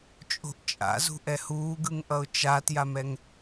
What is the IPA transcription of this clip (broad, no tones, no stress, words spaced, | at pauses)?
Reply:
t͡ʃʼo̤ʔt͡ʃʼa̰zṳ ʔɛhuːɡɯŋʔʌʊ̯ t͡ʃatjamɛŋ